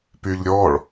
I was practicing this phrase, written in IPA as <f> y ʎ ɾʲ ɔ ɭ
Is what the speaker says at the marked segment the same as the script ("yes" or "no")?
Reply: no